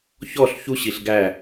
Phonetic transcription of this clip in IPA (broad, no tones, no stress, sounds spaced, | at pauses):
ç ɔ ɬ ç u ɕ i ɬ ɡ æ